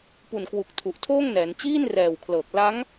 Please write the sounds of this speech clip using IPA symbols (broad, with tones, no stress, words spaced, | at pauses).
pu˨˩nkwu˨˩k̚ tʰu˨˩ʔtʰoː˥˩ŋnɛː˩˦n t͡ɕiː˥˩nrɛː˨˩wkʰlɤː˨˩k̚ la˦˥ŋ